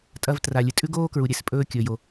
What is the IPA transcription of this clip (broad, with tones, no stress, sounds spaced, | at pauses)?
tʼ ɐ˧ v t r a˩ lʲ ɨ˩ tʼ ʉ˥ ɡ oː˥ k ɹ u˩ ɾʲ e˩ s pʼ ɵː˧ kʲ ɵː˩ j o˩